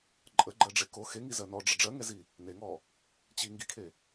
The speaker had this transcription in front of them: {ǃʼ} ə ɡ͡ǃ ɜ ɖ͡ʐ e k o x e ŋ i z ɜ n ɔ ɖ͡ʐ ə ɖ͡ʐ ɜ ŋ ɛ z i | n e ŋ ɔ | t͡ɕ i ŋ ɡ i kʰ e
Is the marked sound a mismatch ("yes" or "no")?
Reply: no